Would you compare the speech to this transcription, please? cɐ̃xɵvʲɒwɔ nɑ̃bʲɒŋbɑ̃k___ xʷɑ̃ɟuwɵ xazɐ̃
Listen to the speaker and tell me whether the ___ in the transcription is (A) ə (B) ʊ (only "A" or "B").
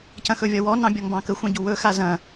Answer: A